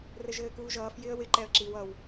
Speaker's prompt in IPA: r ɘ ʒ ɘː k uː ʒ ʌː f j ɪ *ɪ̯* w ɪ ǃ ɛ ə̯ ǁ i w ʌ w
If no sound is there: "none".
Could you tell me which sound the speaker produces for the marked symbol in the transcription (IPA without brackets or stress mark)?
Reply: ə̯